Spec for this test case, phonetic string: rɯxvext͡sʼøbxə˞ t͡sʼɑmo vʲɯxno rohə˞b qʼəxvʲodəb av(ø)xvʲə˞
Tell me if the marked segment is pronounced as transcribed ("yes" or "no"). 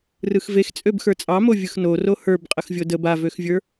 yes